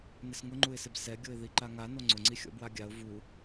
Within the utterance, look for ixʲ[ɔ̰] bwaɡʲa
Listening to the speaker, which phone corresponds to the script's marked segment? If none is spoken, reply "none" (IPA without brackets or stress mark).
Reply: ɔ̰